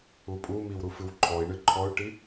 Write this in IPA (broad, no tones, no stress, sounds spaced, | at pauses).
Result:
u pʼ u m i w ɾ u f ɨ w ǃʰ ɔ i̯ ɳ ɨ ǃʰ ɔ y̯ ʈ i